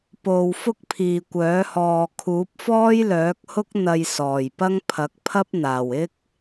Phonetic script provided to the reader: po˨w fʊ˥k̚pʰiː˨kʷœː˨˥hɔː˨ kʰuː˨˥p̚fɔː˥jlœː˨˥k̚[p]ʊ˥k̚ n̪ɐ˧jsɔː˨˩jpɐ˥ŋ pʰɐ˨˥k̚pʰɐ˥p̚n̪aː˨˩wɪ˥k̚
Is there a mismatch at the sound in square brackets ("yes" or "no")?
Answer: yes